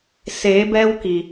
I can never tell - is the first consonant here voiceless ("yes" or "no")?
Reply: yes